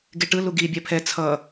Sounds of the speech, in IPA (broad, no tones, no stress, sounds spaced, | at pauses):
ɡ e ʈ ɯ l u ɡ i bʲ ɛ pʰ ɛ t͡sʰ ʌ